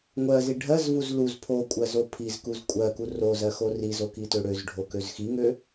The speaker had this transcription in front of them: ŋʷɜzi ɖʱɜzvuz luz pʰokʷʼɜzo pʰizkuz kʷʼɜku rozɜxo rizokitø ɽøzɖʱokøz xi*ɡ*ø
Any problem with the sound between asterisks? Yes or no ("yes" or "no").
yes